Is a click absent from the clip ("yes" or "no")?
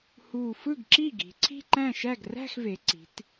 no